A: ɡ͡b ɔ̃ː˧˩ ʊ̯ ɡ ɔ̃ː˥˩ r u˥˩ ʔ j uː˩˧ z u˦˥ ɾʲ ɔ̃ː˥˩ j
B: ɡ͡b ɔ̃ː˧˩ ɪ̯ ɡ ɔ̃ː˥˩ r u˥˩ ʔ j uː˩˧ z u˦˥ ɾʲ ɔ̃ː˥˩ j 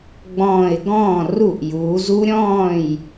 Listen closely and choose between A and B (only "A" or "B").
B